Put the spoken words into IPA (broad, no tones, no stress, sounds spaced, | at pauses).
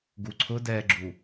ɡ u ǀʰ ʊ d ɛː ɡ͡ǁ u